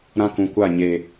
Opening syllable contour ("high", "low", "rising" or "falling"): high